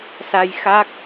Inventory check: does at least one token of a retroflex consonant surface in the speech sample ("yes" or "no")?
no